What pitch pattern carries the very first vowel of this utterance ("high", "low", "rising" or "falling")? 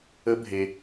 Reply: high